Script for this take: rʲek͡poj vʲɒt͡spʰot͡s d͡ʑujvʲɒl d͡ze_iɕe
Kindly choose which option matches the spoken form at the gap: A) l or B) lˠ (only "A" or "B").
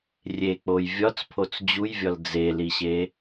A